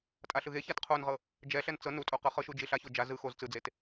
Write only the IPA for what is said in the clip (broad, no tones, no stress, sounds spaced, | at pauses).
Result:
tʼ a ɬ ɯ ɣ e ç a t qʰ o n ʁ ɤ | d͡ʒ ɛ ɬ ɛ n t͡s ɤ n u tʼ o q ɤ χ ɤ ʃ u d͡ʒ i ɬ a ç o d͡ʒ a z ɯ x o z t͡s ɯ d͡z e t